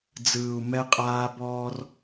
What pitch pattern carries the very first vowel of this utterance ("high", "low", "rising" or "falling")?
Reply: low